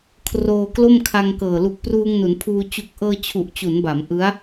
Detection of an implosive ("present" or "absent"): absent